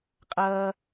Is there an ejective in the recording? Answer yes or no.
yes